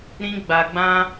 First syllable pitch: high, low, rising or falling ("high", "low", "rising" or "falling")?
high